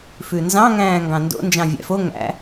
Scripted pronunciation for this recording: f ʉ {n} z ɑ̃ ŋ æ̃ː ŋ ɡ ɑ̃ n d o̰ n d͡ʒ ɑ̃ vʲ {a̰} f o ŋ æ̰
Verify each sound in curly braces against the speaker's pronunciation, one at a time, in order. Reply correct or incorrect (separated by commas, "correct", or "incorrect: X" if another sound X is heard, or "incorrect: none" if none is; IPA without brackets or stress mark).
correct, incorrect: æ̰